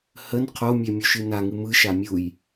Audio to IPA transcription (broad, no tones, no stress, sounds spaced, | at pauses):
h ə n qʰ o mʲ ɛ mʲ u ʃ ɨ n a ŋ ɨ m ɯ ʃ a mʲ u j